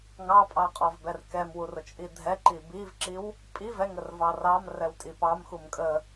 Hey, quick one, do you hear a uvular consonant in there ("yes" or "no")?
yes